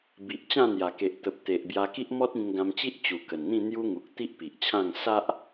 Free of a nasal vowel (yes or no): no